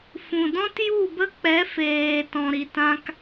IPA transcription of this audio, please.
f ũ˨ d ɔ̃˦ t j u˦˨ b ə˦ k͡p ɛ˨˦ f eː˨ t ɔ̃˨ ɾ i˨ t ã˦ k

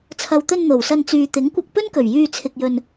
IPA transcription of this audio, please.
t͡sʰ ɐ˨ w t̪ ɵ˧ n n̪ o˨˩ w s ɐ˧ n t͡s yː˨ t̪ ɪ˨˥ ŋ kʷ ɐ˧ k̚ p ɵ˥ n k ɵ˨˩ ɥ j yː˧ t͡sʰ ɪ˧ k̚ j ɵ˧ n

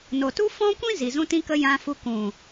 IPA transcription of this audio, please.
n o˨ t u˦ f ɔ̃˦ kʷ ĩ˦ z i˨ z ũ˧ t ĩ˧ k ə˧ j ã˧ f u˧ k ũ˨

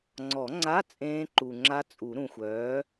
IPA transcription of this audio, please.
ŋ͡ǀ ɔ˨˩˦ ŋ͡ǀ a˧˥˧ t͡sʼ ẽː˦˥ ǃ u˨ ŋ͡ǁ a˦˥ t͡sʼ u˨˩˦ ɾ ũ˨ xʷ œː˨˥

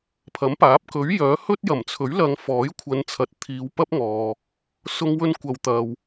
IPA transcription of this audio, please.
pʰ ɐ˨˥ m p aː˨˥ p̚ k ɵ˨˥ ɥ j œː˨˥ h ɵ˥ t̚ j ɐ˨˩ m t͡sʰ ɵ˨˥ ɥ l ɐ˨˧ ŋ f ɔː˨˥ j kʷʰ ɐ˨˧ n t͡sʰ ɐ˨ t̚ t̪ʰ iː˨˧ w p ɐ˥ p̚ ŋ ɔː˨ | s ʊ˧ ŋ w ɵ˧ n kʷ ɐ˨ w t̪ ɐ˨ w

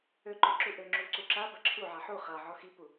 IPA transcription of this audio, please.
ø ǃ ø ǁ u ʔ ø ŋ͡ǁ u ǀ u ǁ a b ɐ ǁʰ u ʕ a ħ u χ a ʕ ɔ x i p u

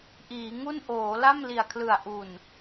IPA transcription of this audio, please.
ʔ iː˩˦ ŋ u˥˩ n ʔ oː˩˦ l a˥˩ m l i˨˩ a̯ kʰ l ɯ˨˩ a̯ ʔ u˨˩ n

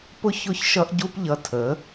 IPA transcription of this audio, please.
p ʊ˦ ç ʊ˦ ç ʃ ʌ˦ ʔ ɟ u˦ p ʎ ʌ˧ tʰ ə˨˦

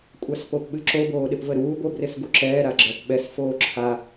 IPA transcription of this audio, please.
kʷʼ a s p o p ɓ ɨ ǁ o b oː ɗ ɪ p v ə ɾ uː ɡʷ ə b r ɪ s ɡ u ǁ ɛː ɾ a ɡ͡ǁ ɜ p ɓ ɛ s f oː ǁʰ a

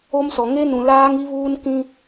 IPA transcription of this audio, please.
o˦ m s ɔ˨ ŋ e˦ n ũ˨ l aː˦ ŋ i˦ β uː˦ n k ĩ˦

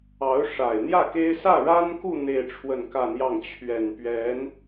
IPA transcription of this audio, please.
ɑ˧˥ ʊ̯ ʂ a˨˩ ɪ̯ n̪ j ä˥˩ k e˥ ɪ̯ s ä˥˩ ɻ a˥ n k u˥˧ n̪ e˥˧ ɪ̯ ʈ͡ʂʰ w ə˥˧ n k ä˥˧ n̪ j ɑ˥˩ ŋ t͡ɕʰ ɥ ɛ˨˩ n p ɥ ɛ˧˥ n

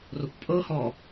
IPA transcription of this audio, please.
r o kʷ pʼ ɤ h ɔ

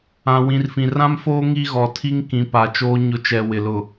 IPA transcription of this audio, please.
ã˨ w ĩ˨ r f ĩ˨ r ã˦ m f oː˦ ŋ i˦ ɣ ɔ˨ tʰ i˦ ŋ k ĩ˨ p a˨ t͡ʃ oː˦ ɲ ʊ˦ t͡ʃ ɛ˨ w ɪ˨ l ʊ˨

